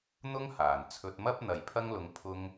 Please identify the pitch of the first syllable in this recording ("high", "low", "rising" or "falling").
high